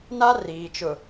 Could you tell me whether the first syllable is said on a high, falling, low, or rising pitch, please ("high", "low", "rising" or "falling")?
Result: high